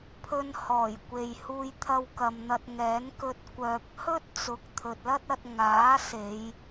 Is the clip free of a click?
yes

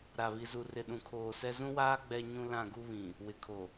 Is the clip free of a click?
yes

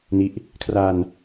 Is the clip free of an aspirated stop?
no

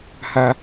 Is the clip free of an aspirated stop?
yes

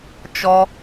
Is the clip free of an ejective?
yes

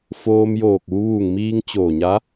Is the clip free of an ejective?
yes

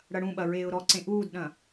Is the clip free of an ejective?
yes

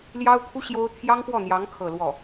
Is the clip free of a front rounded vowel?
yes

